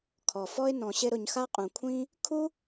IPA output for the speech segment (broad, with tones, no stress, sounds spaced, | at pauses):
kʰ ɔ˨ f ɔ˦ ɪ̯ n ɔ̃˨ ɕ ɪ˧ ɾ ʊ˨ ɲ x a˦ qʼ ũ˨ kʷʰ ĩ˦ | kʰ u˦